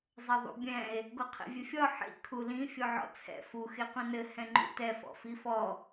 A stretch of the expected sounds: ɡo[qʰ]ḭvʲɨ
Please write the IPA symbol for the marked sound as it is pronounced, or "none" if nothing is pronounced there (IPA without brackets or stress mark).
qʰ